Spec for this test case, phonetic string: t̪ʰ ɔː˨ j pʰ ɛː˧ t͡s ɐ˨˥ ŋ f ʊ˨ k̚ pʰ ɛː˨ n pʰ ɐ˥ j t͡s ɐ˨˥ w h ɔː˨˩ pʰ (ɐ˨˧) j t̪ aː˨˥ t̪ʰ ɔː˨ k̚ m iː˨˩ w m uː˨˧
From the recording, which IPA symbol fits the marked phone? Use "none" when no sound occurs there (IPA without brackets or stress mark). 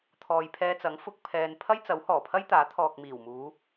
ɐ˥